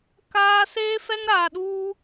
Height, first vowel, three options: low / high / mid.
low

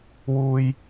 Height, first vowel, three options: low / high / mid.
high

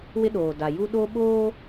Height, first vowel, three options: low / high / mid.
high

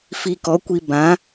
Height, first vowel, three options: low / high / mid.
high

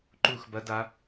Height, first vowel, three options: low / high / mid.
high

